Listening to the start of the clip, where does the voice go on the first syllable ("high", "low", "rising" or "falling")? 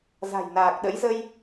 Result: low